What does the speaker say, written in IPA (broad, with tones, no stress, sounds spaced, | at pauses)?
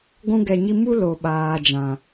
ɡʷ ũ˧ ɡ ɛ˨ ɲ i˧ m u˦ l o˨ ɓ aː˨ d͡ʒ ã˨